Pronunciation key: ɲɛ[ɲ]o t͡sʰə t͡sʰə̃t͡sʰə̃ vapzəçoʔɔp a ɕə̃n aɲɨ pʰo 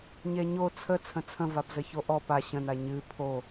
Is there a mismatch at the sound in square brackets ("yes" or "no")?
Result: no